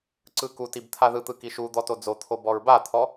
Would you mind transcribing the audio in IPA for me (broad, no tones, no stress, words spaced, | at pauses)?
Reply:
ǀɯkutib t̪ʰaðɯt̪ɯ kiʃud̪ɔ tod͡zot̪ʰo bɔɹbat̪ʰɔ